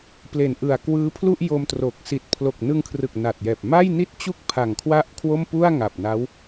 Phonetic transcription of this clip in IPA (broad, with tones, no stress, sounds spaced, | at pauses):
p l e˨˩ n ʔ ɯ˨˩ a̯ k w ɯː˦˥ pʰ l u˥˩ ʔ j o˧ m t r o˨˩ k̚ s i˨˩ t̚ pʰ l o˨˩ k̚ n ɯ˧ ŋ kʰ r ɯ˨˩ k̚ n a˨˩ t̚ j ɛː˨˩ p̚ m a˥˩ j n i˥˩ t̚ t͡ɕ u˥˩ k̚ pʰ a˨˩ ŋ kʰ w a˥˩ ʔ kʰ w o˥˩ m p u˥˩ a̯ ŋ a˨˩ p̚ n a˦˥ w